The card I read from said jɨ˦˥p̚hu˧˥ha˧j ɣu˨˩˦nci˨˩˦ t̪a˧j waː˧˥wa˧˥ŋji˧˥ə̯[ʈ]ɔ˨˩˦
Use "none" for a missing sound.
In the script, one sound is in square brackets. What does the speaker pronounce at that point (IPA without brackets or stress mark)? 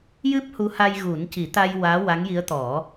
t̪